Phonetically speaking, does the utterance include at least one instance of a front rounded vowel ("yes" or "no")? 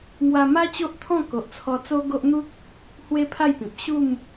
no